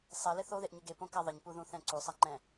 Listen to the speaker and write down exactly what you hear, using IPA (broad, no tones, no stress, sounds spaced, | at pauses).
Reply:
sˤ e l ɪ θ o ð e ʔ ɲ ɪ ɡ e p õ k a ðˤ ɪ ɲ p u ð ũ θ ɛ̃ ǀ u sˤ a ŋ͡ǃ ɛ̃